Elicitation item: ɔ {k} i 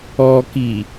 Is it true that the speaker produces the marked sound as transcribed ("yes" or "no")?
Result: yes